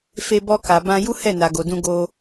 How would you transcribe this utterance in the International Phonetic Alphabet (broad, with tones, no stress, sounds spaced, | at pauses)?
f e˧ b ɔ˧ k a˨ b ã˧ j u˦ h ɛ˦˨ n a˨ ɡ o˨ d ũ˧ ɡ o˧